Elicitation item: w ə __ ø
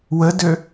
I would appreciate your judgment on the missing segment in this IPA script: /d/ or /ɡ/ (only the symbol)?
d